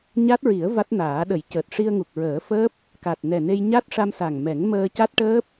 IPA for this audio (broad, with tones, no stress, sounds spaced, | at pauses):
ɲ a˦˥ t̚ ɹ i˨˩˦ ə̯ v a˦˥ t̚ n aː˨˩˦ ɗ ə˨˩˦ j c əː˨˩ t̚ ʂ i˧ ə̯ ŋ u˨˩ k̚ ɹ əː˨˩˦ f əː˦˥ p̚ | k a˨˩ t̚ n ɛ˨˩ n e˧ j ɲ a˦˥ t̚ ʂ a˧ m s a˨˩ ŋ m ɛ˨˩˦ ŋ m əː˧ c a˦˥ t̚ ʈ əː˦˥ p̚